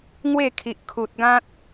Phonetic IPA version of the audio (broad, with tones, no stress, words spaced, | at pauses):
ŋwe˥˧kʰi˨ʔkʰu˨t̚ɡã˦t̚